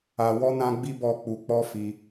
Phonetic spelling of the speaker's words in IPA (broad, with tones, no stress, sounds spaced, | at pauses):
a˧ w ɔ˦ n ã˦ ɡ͡b i˦ b ɔ˦˨ k͡p u˧ k͡p ɔ˦ f i˧